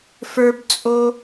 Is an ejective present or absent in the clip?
present